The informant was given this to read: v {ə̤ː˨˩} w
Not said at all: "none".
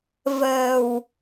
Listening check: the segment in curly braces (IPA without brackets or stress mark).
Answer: ə̤ː˨˩